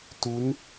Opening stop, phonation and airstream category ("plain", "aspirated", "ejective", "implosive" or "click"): plain